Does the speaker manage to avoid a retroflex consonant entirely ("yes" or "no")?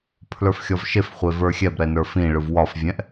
no